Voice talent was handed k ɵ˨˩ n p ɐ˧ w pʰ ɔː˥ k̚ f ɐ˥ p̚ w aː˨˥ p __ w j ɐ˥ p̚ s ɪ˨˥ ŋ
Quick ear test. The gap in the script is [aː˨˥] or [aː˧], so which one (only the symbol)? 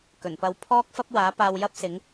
aː˧